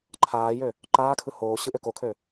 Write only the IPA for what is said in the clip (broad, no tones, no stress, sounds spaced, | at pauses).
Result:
ǃʰ aː j ø | ǃ aː kʰ ɯ h oː ɕ ɯ ʔ ø k o kʰ ø